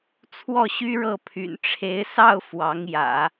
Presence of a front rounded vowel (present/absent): present